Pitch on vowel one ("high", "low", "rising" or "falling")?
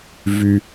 low